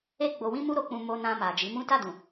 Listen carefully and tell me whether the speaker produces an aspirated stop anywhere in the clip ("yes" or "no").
no